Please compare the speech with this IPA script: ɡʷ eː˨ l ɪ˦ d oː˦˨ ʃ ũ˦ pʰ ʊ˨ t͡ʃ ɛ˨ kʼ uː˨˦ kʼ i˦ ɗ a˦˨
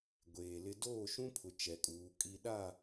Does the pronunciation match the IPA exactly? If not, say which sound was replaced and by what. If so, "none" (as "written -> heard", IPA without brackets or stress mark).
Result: none